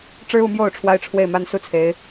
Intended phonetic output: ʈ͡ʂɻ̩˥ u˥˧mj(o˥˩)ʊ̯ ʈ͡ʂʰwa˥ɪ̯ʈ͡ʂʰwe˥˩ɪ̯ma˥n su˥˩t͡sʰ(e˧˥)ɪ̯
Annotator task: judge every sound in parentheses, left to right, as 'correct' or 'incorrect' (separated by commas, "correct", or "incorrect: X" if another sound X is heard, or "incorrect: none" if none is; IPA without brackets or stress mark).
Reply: correct, correct